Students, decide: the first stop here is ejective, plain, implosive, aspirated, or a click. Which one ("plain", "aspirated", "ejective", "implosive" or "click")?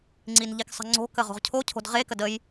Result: click